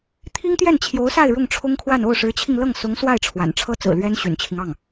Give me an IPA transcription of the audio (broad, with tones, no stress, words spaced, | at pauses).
t̪ʰi˥ŋt̪jɛ˥˩nt͡ɕʰjo˧˥ʊ̯sa˥˧ɪ̯ ɻʊ˥˩ŋʈ͡ʂʰʊ˥ŋkʰwa˥˧n o˥˩ʊ̯ʂɻ̩˧˥t͡ɕʰi˧ŋlɤ˥˩ŋ sʊ˧˥ŋ swa˥˩ɪ̯ ʈ͡ʂʰwa̰˨˩n ʈ͡ʂʰɤ˥t͡sɹ̩˨˩lɥɛ˥n ɕy̰˨˩nt͡ɕʰi˦ŋ ɑ˥˩ŋ